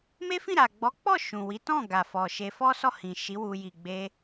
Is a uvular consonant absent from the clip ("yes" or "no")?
yes